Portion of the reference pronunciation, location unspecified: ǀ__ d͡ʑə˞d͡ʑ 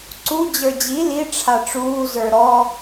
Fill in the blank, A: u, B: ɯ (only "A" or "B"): A